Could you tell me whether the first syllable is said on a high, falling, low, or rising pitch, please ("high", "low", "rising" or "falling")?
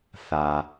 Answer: low